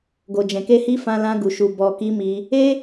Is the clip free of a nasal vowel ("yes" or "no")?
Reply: no